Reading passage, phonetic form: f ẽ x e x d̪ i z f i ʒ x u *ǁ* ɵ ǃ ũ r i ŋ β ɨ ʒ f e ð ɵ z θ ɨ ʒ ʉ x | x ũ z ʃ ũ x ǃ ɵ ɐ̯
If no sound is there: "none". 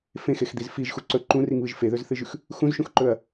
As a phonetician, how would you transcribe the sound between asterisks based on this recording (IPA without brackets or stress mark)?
ǀ